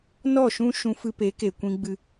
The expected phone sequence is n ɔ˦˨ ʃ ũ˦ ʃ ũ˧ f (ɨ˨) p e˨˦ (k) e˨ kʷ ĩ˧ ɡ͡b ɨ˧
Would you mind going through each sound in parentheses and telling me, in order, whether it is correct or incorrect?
incorrect: ɨ˧, correct

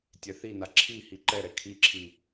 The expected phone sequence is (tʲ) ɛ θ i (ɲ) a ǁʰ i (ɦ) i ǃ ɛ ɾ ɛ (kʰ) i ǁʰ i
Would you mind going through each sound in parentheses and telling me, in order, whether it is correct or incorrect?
correct, incorrect: n, incorrect: h, correct

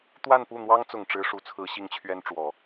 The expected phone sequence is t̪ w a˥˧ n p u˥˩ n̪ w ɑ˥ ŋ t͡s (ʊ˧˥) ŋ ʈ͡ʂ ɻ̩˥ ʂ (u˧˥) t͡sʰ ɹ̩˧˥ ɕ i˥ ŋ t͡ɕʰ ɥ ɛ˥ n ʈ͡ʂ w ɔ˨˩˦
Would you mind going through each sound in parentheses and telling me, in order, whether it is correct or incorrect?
incorrect: ʊ˨˩, correct

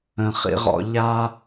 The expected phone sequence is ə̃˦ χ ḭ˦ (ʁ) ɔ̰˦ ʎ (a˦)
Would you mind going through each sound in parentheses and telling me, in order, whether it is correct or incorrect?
correct, correct

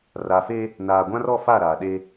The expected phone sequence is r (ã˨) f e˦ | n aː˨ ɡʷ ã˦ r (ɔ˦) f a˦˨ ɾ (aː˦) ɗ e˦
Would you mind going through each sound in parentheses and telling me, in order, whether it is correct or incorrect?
incorrect: a˨, correct, incorrect: aː˨

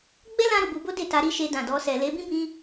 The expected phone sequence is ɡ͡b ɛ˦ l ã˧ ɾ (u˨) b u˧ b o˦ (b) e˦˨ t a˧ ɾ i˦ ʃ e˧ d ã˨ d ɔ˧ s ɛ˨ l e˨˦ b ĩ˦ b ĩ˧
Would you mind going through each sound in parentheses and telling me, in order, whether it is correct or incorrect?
correct, incorrect: d

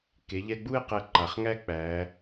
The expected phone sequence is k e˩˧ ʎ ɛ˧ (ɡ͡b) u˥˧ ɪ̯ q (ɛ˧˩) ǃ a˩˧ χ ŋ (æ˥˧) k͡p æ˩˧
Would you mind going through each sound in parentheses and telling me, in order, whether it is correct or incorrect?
correct, correct, correct

